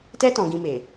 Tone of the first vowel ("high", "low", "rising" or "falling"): high